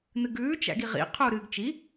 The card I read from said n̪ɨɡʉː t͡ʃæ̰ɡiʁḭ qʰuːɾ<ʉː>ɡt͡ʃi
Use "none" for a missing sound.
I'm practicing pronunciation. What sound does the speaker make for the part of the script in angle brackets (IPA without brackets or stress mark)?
ɨː